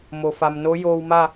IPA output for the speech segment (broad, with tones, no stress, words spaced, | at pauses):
mo˩fa˩mno˧˥ joː˧wma˥˨